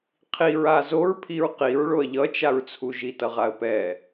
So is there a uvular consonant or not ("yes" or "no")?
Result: yes